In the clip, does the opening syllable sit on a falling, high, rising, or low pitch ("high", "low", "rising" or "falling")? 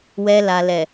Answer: low